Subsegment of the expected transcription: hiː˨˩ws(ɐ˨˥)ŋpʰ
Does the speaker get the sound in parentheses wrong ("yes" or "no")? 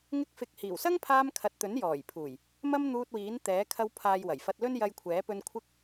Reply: yes